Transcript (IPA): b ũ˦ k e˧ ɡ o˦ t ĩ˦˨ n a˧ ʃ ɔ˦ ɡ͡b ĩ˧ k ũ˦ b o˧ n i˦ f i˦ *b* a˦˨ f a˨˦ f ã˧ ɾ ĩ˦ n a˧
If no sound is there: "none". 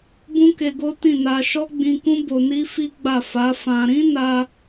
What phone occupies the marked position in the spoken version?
ɡ͡b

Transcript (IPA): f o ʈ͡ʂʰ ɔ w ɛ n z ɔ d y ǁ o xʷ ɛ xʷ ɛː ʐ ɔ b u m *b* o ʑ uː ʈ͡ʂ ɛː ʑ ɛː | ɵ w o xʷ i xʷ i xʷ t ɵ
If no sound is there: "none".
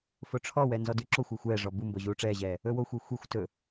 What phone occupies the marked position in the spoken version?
b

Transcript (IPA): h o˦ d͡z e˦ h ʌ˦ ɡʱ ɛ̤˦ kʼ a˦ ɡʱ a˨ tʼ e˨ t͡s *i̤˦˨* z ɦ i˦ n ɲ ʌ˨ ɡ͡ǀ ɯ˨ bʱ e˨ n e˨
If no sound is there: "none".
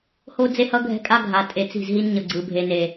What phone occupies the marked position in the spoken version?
i̤˦˨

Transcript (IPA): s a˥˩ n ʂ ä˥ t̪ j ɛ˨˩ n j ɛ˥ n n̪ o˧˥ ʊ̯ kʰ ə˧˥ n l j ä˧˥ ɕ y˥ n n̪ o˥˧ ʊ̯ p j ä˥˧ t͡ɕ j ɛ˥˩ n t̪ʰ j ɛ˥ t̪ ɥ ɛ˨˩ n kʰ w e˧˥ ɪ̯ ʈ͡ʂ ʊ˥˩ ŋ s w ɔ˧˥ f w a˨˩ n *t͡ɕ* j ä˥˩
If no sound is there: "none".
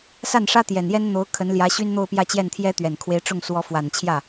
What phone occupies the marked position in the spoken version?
t͡ɕʰ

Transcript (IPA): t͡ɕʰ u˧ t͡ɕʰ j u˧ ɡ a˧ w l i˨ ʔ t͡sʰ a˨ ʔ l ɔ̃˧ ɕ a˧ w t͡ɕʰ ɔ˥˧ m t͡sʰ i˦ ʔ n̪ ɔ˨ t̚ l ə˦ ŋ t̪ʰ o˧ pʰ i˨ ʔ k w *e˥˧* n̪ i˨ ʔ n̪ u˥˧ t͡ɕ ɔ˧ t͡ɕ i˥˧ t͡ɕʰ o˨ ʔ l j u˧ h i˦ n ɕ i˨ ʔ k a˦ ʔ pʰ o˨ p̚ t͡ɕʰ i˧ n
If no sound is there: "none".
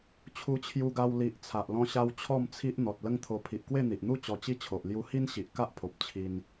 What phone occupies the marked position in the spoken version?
e˥˧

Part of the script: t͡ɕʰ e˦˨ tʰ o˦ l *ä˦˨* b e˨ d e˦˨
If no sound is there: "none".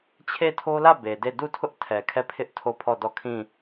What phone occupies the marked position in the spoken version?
ä˦˨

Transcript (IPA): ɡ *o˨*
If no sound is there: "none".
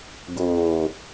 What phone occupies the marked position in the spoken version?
oː˨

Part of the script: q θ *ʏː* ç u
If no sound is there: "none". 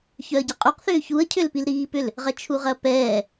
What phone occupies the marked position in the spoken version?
ʏː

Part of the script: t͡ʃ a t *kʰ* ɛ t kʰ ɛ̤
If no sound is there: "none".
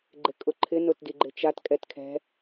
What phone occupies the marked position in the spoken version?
kʼ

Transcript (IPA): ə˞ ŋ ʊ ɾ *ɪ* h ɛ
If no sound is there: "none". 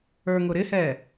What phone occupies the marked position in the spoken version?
ɪ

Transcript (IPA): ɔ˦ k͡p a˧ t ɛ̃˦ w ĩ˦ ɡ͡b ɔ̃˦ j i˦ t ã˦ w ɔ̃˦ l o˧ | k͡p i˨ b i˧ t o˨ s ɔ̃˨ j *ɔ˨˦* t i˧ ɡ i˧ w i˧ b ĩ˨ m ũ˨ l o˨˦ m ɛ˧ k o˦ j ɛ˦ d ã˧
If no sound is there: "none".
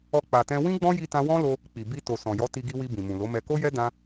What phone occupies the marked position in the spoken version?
ɔ˨˦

